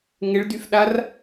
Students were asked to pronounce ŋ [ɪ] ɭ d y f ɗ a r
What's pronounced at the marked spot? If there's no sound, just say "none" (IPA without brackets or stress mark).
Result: ɪ